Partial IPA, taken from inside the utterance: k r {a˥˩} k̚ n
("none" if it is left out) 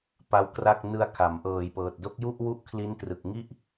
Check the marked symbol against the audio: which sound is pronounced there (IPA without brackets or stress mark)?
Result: a˥˩